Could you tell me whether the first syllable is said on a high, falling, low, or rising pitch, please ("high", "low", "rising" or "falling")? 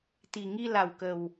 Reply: low